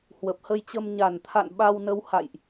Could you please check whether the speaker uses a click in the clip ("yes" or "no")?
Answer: no